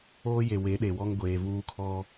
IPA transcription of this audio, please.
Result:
oː˦ j e˨ w e˨˦ ɗ e˨ w ɔ˦ ŋ ɡʷ eː˨ v uː˦ kʰ ɔ˦

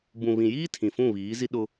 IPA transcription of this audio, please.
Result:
b ũ˨ β ĩ˨ j iː˦ tʰ ĩ˨ f ũ˦˨ β iː˨˦ z i˦ ɗ ʊ˦

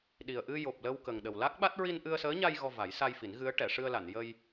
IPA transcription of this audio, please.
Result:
ɗ i˨˩ ə̯ ʔ ɨ˧ j o˨˩ p̚ l ə˧ w k ə˨˩ ŋ ɗ ə˨˩ w l a˦˥ k̚ ɓ a˦˥ t̚ ɹ i˧ n ʔ ɨ˧ ə̯ s əː˧˥ ɲ a˧ j ɣ ɔ˧ v a˨˩˦ j s a˧ j f i˨˩˦ n ɣ ɨ˧˥ ə̯ ʈ ɛ˨˩˨ ʂ ɨ˧ ə̯ l a˨˩˨ n j ə˧ j

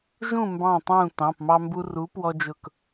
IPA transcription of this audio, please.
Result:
ʒ ũ˥˨ m b ɑ̃˧˩ tˤ ũː˧˩ t ɑ̃˩˧˩ p m ɑ˦ m b u˦ r u˨˥ p w ɔ˦ d͡ʒ ʊ˧˩ k

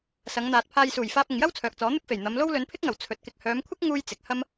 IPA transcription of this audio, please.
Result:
s ɐ˨˧ ŋ n̪ aː˨ t̚ pʰ aː˧ j s uː˨˩ j f aː˧ p̚ ɪ˨ ŋ j ɐ˥ w t͡sʰ œː˨ k̚ t͡s ɔː˨˥ n̪ ɪ˥ k̚ f e˨˩ j n̪ ɐ˨˧ m l o˥ w l ɵ˨˧ n pʰ ɪ˥ k̚ ŋ ɐ˨˩ w t͡sʰ ɵ˨ t̚ k ɪ˧ k̚ h œː˨˧ m kʷʰ ɪ˥ k̚ ŋ uː˧ j t͡s ɪ˨ k̚ h ɐ˥ m

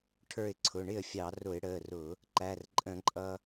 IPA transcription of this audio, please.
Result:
ʈʰ ə˞˧˩ ɪ̯ ǀʰ ʊ˩˧˩ ɳ ɪ˥˩ ə̯ fʲ ɑ˧˩˧ r ʊ˧˩˧ ɪ̯ ɽ əː˩˧˩ r ʊ˧˩˧ | ǃ æ˩˧˩ r ǃʼ ə̃˧˩˧ ǃʼ ʌ˧

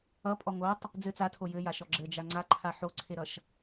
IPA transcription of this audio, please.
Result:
ʌ pʼ ɔ ŋ o tˤ | d͡z ɘ t͡s a tʰ o j ɘ j a ʃ ɔ ɡ͡ǁ ɘ d͡ʒ a ŋ͡ǀ a ǃʰ a ħ o ǀʰ e ɾ ʌ ʃ

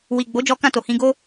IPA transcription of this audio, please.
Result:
w i˨ ɡ͡b o˨˦ d͡ʒ ɔ˧ k ã˧ t o˨ h ĩ˧ ɡ o˦

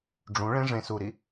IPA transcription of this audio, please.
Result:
ɖ͡ʐ ũ ɭ ẽ ʐ ẽ s u ɾ i

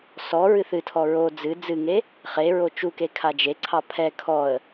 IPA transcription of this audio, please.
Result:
s ɔ ɹ ɨ θ ɨ tʰ ɔ ɹ o d͡z ɨ d͡z ɨ ŋ e | χ e ɹ o t͡ʃ u k e kʰ a d͡ʒ e ǀʰ ɑ pʰ ɛ kʰ ɔ ə̯

